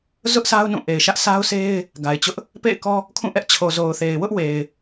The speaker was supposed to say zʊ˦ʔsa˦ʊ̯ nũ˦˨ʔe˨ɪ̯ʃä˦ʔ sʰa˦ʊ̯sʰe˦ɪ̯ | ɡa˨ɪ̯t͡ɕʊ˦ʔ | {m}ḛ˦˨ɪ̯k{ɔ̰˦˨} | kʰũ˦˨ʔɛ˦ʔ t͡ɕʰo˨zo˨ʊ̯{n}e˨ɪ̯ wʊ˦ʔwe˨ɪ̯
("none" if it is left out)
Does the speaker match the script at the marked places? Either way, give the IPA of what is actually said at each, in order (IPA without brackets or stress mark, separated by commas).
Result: p, ɔ˦, θ